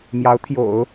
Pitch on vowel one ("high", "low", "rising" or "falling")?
rising